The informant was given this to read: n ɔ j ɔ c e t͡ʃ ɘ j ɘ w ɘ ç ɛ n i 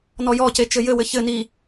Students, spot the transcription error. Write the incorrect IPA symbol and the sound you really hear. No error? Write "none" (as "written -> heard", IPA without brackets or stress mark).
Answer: ɛ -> ɘ